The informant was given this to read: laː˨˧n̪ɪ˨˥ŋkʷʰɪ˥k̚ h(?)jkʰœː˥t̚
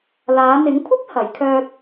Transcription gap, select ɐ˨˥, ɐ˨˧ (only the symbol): ɐ˨˥